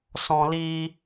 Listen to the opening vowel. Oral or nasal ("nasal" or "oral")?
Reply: nasal